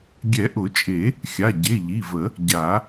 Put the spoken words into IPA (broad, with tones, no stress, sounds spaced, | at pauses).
ɡʲ ɛ˨˩˦ ʔ ʊ˨˩˦ t͡ʃʼ e˨˩˦ | xʲ a˩˧˩ ɟ e˩˧˩ ʎ i˩˧˩ v ə˨˩˦ | ɟ a˨˩˦